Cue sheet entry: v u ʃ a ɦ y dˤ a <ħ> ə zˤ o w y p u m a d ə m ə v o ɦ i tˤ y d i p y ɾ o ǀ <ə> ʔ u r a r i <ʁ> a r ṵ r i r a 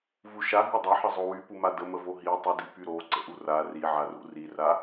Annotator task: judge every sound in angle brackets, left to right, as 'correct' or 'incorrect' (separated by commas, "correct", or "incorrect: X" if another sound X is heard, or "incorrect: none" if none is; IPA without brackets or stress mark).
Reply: correct, incorrect: ə̰, incorrect: ʕ